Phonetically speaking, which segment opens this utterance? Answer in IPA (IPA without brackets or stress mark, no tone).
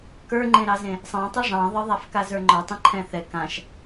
k